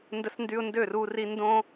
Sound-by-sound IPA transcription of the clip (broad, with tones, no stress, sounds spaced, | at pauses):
n d ə˧ s n d y˧ ʊ̯ n d ø˦˨ r u˧ r i˧ n d õ˦